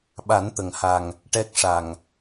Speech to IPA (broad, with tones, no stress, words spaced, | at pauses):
ɓa˨˩˦nt̪ə˨˩˨ŋha˨˩ŋ | ʈɛ˦˥k̚ʂa˨˩ŋ